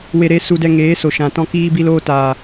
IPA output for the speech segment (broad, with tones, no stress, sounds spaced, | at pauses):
w e˧ ɾ e˦ s u˧ d ɛ˧ ŋ eː˨˦ s o˨ ʃ ã˨ t ɔ̃˧ k iː˧ b i˧ l oː˧ t aː˨